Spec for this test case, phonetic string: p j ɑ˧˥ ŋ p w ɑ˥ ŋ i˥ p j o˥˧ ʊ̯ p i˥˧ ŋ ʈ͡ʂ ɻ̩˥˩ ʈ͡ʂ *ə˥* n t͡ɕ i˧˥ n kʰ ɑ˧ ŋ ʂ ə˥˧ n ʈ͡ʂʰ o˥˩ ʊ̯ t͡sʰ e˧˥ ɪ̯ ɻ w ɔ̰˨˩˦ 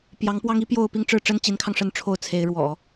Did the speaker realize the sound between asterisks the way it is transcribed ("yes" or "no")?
yes